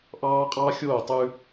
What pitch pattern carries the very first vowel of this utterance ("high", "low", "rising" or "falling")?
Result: high